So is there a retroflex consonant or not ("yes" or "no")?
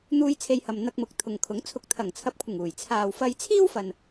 no